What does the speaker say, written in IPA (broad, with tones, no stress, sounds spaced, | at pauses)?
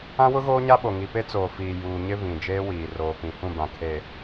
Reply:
ã˦ w ʊ˦ ɣ oː˦ ɲ a˦ ɓ o˨ ŋ i˨ p e˦ t͡s oː˨ f iː˨ j uː˨ ɲ ɪ˦ v ĩ˨ d͡ʒ eː˦ w iː˨ r oː˨ p ĩ˨ h ũ˦˨ b ã˨ kʰ e˨